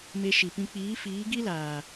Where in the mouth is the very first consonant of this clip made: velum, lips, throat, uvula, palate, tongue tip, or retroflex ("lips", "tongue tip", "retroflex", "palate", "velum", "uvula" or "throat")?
lips